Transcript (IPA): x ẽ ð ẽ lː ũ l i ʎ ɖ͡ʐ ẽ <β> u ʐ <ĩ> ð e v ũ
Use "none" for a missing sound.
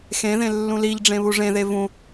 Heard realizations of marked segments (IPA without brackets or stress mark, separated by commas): β, ẽ